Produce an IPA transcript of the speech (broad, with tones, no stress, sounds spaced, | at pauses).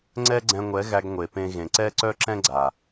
ŋ͡ǀ ɛ˦ ɡ͡ǀ ɛ̃˧ ŋʷ ɛ˨˦ ɣ æ˧ ɡ ŋʷ e˨ p ẽ˧ ɣ ẽ˨ ǀ ɛ˦ ǀ œ˦ ǁ ɛ̃˦ ɡ͡ǀ a˨